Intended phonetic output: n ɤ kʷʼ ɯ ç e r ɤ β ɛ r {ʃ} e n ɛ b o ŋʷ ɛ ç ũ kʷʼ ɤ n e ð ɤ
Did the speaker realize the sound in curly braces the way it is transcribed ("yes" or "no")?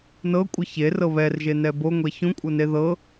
no